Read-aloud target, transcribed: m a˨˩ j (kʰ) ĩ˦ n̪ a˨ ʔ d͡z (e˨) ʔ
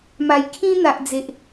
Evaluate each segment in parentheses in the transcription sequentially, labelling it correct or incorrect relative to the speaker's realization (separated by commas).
correct, correct